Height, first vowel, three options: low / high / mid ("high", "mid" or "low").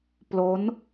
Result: mid